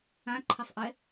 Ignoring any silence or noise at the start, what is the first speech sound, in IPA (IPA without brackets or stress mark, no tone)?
ã